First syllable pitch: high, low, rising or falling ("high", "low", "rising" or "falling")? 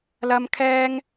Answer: high